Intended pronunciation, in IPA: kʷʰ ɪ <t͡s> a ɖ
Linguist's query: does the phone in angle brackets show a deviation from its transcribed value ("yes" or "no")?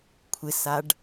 yes